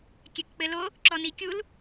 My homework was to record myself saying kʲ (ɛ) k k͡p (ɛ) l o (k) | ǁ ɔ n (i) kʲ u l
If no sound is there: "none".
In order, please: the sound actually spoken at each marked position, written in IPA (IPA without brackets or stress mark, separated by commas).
ɛ, ɘ, none, i